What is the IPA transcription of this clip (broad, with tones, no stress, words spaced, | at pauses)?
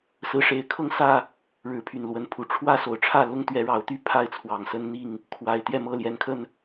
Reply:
sɹ̩˨˦ʂe˨˦ɪ̯kʰɤ˥˨ŋsä˥˨ | ɻɻ̩˨˦pʰy˨˩nlwə˨˦npʰu˨˩ ʈ͡ʂʰwä˦so˨˩ʊ̯ʈ͡ʂʰä˥˨ lʊ˦ŋt̪ɥɛ˨˦ ɻɑ˨˦ʊ̯t̪y˦ pʰa˥˨ɪ̯t͡sʰwɑ˨˩ŋsə˦nn̪i˥˨ŋ | kʰwa˨˩ɪ̯ t̪jɛ˥˨mɤ˥˨ljɛ˨˦nkʰə˥˨n